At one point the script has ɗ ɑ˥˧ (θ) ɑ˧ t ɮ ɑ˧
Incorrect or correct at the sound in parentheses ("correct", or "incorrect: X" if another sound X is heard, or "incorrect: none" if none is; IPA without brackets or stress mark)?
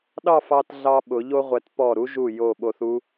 incorrect: f